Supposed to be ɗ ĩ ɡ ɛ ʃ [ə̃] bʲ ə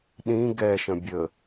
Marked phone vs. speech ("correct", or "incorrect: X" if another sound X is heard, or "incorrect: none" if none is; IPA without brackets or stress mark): correct